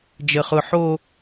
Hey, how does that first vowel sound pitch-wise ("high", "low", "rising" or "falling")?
high